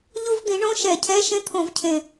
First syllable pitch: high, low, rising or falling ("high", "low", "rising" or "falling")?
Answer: high